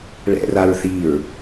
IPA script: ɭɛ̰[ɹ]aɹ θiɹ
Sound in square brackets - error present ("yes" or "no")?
yes